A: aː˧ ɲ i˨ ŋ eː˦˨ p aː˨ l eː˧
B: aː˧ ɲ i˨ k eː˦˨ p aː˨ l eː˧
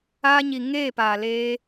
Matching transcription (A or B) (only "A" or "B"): A